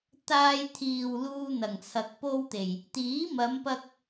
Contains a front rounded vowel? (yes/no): no